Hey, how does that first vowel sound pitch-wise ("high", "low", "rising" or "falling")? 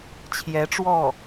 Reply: rising